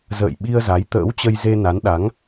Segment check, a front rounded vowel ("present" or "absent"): absent